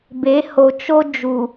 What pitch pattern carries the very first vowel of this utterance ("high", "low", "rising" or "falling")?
rising